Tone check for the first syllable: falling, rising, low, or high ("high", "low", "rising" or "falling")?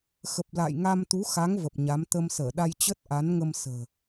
low